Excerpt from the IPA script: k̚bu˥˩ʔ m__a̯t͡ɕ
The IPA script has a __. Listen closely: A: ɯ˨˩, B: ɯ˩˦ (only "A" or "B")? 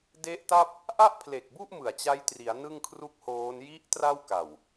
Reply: A